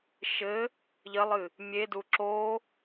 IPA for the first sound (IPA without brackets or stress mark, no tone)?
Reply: ʃ